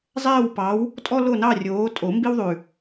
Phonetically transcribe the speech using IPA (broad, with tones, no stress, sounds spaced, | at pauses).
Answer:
zˤ ɛː˦˨ w p ɑ˨˦ w | tʼ ɔ˦ l o˦˨ n ɑ˦˨ rʲ oː˨˦ tʼ o˨˩˦ m b i˦ w ðˤ ʉ˨˩